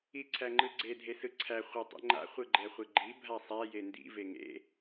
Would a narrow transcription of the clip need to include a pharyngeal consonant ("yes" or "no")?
no